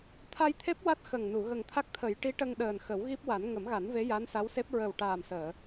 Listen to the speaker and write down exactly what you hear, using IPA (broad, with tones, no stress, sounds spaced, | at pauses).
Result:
t̪ʰ a˧ j t̪ʰ e˦˥ p̚ w a˦˥ t̚ x ə˨˩ ŋ n u˨˩˨ ɣ ə˨˩ ŋ t̪ʰ a˦˥ k̚ t̪ʰ ə˨˩˦ j ʈ i˧˥ ʈ ə˧ ŋ ɗ əː˨˩ n x ə˨˩˦ w ɣ i˦˥ p̚ w a˨˩˦ n ŋ ə˨˩˦ m ɣ a˨˩˦ n v e˧˥ j a˧˥ n s a˧˥ w s e˦˥ p̚ ɹ ə˨˩ w ʈ aː˨˩ m s əː˨˩˨